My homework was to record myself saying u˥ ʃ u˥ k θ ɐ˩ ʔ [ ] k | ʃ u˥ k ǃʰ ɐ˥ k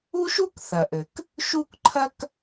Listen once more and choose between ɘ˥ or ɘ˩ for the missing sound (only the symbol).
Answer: ɘ˩